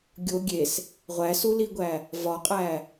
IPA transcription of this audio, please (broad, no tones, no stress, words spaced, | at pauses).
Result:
ɡʲo ɡʲes | ʁʷæsuliɡʷæ | vɒqʼæ